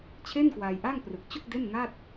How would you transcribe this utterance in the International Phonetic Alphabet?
t͡ɕʰe˥˩nkwaː˧jʔa˥˩ŋ prɯ˨˩k̚t͡ɕu˥˩k̚ de˥˩nŋa˥˩t̚

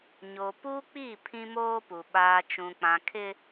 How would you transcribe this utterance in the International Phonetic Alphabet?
ɲo˨ pu˦k͡pi˦˨ pʰĩ˦moː˦pu˨ ɓaː˨ t͡ʃũ˨k͡pã˨kʰɪ˦

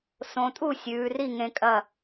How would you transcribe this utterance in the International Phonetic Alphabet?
sõ˩˧tʼu˥˩ sʲʉː˩˧ri˥˩ŋẽ˧ kʼɐ˥˩

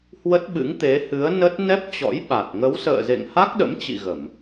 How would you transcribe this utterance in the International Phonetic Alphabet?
hwə˦˥t̚ɓɨ̰˧˥ŋt̪e˨˦hɨ˨˦ə̯ nə˦˥t̚ nɛ˦˥p̚t͡ɕɔ̰˧˥jɓa˨˩t̚ ŋə˨˦wsə̰ː˧˨ zḛ˧˨ŋha˦˥k̚ɗə̰˧˥mt͡ɕḭ˧˨ ɣə˧˩˨m

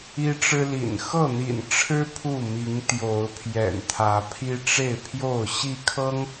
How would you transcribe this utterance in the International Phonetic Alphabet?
i˦ʈ͡ʂɻ̩˦lḭ˨˩n xɤ˥˨n̪ḭ˨˩nʈ͡ʂʰɻ̩˦ pʰu˥˨mi˨˦ŋ t̪jo˨˦ʊ̯ pʰjɛ̰˨˩nt̪ʰä˨˦pʰi˦ ʈ͡ʂe˥˨ɪ̯pʰjo˥˨ʊ̯ ɕi˥˨kʰɤ˦ŋ

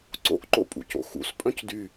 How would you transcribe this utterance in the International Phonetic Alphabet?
ǀo̰ʔǃo̰pʼṵ co̰xṵs pʼœ̃cdy

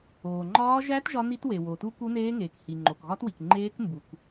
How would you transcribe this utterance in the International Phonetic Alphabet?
oː˩ ŋ͡ǃɒː˦˥ ʒæ˦˥t ʒɒ˦˥ni˦˥twe˩ wo˩tu˦˥ ku˦˥neː˦˥ŋeː˩k hi˩ ŋ͡ǃo˩kɣɒ˦˥twi˩k ŋ͡ǃeː˦˥k mbu˩k

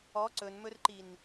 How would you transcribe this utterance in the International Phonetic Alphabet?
ɔ ǀɵnmɵrǃin

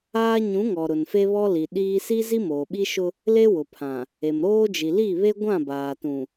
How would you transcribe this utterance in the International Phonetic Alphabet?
aː˦ ɲũ˨˦ŋɔ˨ ɾʊ˨nfe˦βɔ˦li˨ ɗiː˦ si˦zi˦ moː˨ɓi˦ʃʊ˦ | le˦ wʊ˨pʰã˨ | e˨mɾoː˦d͡ʒi˨ li˦˨βe˦ ɡʷã˦˨baː˨tũ˨

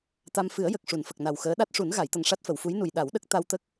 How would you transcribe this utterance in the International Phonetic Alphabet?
t̪a˧m fɨ˨˩˦ə̯jə˨˩k̚ ʂu˨˩˨nfə˨˩k̚ na˨˩wxəː˧˥ ɗa˦˥t̚ʂu˨˩˦n ɣa˨˩˨jt̪ə˨˩ŋ ʂa˦˥t̚fə˨˩˨wfu˧˥jnu˨˩j ɗa˨˩˦wɗə˦˥k̚ t̪a˧wt̪ə˦˥k̚

